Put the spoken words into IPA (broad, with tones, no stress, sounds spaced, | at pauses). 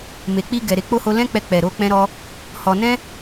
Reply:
m e˨ k͡p i˧ ɡ ɛ˨ ɾ e˧ k͡p o˦ h o˧ l ɛ̃˦ k͡p ɛ˧ k͡p ɛ˨ ɾ o˨˦ k͡p ɛ̃˦ ɾ ɔ˦ | h ɔ˧ n ɛ̃˦